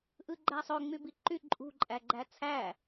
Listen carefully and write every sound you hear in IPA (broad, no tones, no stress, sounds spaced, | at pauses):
ʔ ɯ ɡ͡ǃ æ sˤ ø ŋ͡m y b i ǃ y ǃʼ ṳ ǃʼ æ ɡ͡ǃ æ t͡sʰ æ